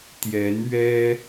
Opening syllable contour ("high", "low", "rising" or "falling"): rising